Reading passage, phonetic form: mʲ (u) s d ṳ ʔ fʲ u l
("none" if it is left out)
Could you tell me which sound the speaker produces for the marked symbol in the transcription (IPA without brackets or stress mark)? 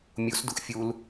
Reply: u